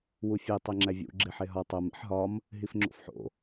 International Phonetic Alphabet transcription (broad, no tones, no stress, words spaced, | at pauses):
wufʲe tˤeŋ͡ǁævʲṵ ɡ͡ǁeħeɦɒ tˤom ḛħɦɒm | ɦifŋ͡ǁo̰fħo̰